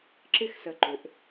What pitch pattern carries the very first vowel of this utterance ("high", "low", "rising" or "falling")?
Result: falling